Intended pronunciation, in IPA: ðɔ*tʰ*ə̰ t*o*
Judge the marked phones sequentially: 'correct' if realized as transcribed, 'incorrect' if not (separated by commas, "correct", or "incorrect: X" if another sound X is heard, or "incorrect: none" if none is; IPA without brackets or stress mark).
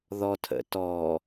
correct, incorrect: ɔ